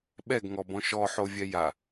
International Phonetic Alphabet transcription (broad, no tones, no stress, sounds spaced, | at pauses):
ɓ ɛ ɡ ŋ ɔ b ɔ̃ ʃ ɔ ħ o vʲ ɛ j a